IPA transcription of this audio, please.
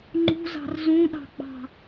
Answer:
ŋ͡ǃṳzɑ̤r zũɗɑ̤ɡ͡bɑ̤

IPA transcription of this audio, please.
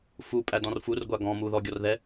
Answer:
fu pʼædɔ̃rfurɡʷa ɡɔ̃ muðɔɡʲɔrðɛ

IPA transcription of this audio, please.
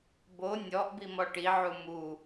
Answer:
bo nʲɔʔbimɔ ʈiʕu mu

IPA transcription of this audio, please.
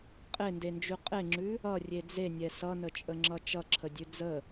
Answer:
qʼendend͡ʒʉ qʼeŋ͡ǁʉ | ʌrʲe d͡zenʲɛ sʌnət͡ʃʼəŋ͡ǁʌ t͡ʃʌǁʰədʲʉ d͡zə

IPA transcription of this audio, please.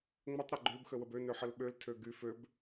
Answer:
ŋ͡mətˤ ɾeɡ͡ǃøb xəwəbø nøħəlɓøl tʰøɡy føb

